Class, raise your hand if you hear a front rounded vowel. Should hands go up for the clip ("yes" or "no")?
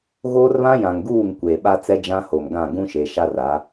no